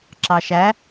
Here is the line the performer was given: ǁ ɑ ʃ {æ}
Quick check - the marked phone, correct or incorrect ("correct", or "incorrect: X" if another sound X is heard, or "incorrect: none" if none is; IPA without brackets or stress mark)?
correct